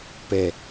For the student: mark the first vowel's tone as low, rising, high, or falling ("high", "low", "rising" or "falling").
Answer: low